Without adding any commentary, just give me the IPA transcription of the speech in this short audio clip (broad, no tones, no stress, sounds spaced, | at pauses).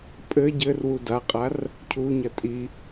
pʼ ɘ ɟ ɘ r w u d a qʼ a r | cʰ u ɲ ɐ tʼ i